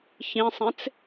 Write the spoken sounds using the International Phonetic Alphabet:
çĩsˤẽt͡s

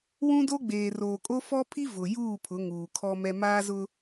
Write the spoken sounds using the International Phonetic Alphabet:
wũ˦do˦ɡ͡beː˨ roː˨kʼo˦fɔ˦pʰi˦ vʊ˨ juː˦˨pʰʊ˨˦ ŋuː˨kʰɔ˦mɛ˦ maː˦zʊ˦

